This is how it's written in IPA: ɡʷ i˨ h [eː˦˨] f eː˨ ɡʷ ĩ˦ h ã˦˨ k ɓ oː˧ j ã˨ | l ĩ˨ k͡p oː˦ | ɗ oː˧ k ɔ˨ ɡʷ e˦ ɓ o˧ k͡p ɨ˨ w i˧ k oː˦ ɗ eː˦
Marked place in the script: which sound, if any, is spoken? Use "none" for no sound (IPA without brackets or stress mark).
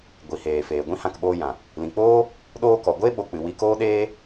eː˨